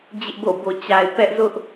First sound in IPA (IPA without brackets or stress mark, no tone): d͡ʑ